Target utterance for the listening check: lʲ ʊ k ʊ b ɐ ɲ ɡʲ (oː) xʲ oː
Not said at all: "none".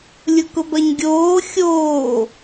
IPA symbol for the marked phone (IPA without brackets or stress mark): oː